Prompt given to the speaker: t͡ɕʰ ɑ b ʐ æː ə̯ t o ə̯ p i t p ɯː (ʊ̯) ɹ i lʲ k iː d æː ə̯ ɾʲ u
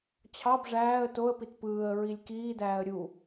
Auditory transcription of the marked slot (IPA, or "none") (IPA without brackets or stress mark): ə̯